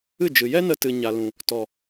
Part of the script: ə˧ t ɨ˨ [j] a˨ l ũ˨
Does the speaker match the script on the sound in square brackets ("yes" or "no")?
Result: no